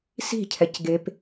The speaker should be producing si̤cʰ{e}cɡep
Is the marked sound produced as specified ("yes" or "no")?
no